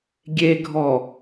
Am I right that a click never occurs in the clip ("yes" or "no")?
yes